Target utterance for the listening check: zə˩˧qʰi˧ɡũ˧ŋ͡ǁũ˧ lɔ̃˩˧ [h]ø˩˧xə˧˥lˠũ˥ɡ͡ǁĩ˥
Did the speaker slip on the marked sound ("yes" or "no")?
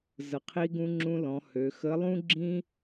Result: no